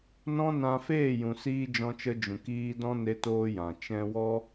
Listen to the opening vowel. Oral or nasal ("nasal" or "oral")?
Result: nasal